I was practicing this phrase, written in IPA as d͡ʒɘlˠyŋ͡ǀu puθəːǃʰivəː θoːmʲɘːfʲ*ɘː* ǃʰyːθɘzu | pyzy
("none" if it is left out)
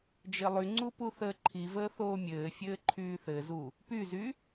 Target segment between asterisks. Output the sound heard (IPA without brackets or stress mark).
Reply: ɘː